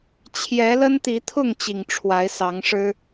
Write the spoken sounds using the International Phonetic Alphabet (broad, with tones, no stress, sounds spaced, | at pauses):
t͡ɕʰ j ɛ˨˦ l ə˦ n t̪ i˨˦ t̪ʰ ʊ˥˨ ŋ t͡ɕ i˨˩ ŋ ʈ͡ʂʰ w a˨˦ ɪ̯ s ɑ˨˦ ŋ ʂ ɻ̩˦